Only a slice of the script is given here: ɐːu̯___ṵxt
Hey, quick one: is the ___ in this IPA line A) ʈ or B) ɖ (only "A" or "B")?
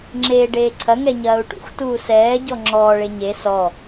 A